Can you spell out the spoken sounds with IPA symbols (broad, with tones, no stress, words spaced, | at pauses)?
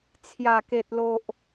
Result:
t͡sʰja˨˩ke˨t̚ lo˨ʔ